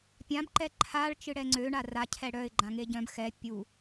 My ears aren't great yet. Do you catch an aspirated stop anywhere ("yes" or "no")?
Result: yes